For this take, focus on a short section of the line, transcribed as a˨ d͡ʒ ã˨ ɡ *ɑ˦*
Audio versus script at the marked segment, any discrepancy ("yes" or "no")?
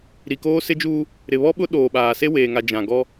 yes